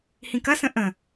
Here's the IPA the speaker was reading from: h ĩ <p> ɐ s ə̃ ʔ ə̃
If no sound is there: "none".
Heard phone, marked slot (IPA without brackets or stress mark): k